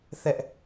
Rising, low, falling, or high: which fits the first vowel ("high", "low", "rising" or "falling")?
high